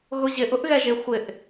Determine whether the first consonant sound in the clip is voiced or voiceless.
voiced